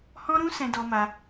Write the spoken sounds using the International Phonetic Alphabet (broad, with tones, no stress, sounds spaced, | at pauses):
h ɔ̃˦ ɾ ũ˦ s ɛ̃˧ d ɔ˧ m a˧